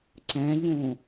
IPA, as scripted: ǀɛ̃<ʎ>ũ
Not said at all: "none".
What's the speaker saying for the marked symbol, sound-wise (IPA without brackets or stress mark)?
ʎ